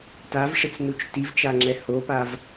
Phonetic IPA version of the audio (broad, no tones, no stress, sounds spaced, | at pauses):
t a v ʂ ɪ t͡s n u t͡ʃ t i v t͡ʃ a ŋ͡ǁ ɛ h o p a v